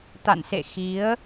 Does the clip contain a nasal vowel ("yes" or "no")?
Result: no